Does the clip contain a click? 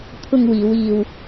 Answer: no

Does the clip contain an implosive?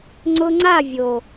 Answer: no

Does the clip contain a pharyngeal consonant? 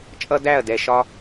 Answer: no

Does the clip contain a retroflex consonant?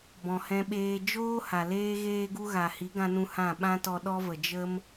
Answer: no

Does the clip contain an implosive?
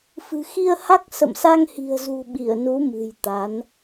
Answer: yes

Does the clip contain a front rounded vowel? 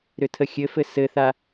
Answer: yes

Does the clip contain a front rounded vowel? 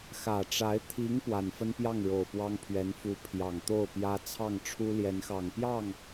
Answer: no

